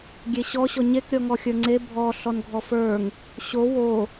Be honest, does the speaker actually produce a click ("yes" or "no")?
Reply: yes